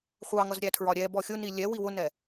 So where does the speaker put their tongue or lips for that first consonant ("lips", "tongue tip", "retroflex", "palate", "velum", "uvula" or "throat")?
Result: uvula